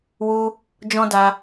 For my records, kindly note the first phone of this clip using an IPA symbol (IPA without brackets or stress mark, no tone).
w